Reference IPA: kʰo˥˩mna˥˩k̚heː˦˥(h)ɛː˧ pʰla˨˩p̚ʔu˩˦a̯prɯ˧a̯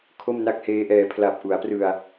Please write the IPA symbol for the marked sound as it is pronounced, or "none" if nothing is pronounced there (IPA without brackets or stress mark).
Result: ʔ